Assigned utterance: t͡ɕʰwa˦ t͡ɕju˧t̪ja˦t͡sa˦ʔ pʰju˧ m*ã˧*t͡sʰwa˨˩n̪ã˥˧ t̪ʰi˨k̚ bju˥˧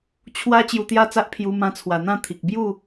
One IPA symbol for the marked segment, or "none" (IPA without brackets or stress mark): ã˧